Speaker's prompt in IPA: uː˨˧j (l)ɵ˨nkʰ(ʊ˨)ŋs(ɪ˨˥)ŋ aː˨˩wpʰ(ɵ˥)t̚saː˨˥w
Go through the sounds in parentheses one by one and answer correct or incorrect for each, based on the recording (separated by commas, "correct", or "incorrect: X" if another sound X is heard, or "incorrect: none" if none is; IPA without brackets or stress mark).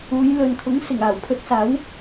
correct, incorrect: ʊ˨˥, incorrect: ɪ˨˩, incorrect: ɵ˧